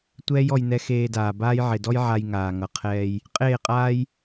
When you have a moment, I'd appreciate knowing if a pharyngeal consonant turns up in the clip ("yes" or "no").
yes